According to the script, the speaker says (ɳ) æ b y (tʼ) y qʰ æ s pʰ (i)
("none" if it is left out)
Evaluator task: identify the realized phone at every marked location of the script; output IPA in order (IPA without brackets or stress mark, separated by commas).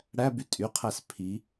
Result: ɽ, tʼ, i